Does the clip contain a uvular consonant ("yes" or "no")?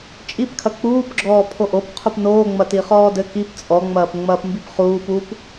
yes